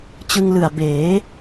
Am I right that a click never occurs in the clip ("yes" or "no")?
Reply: yes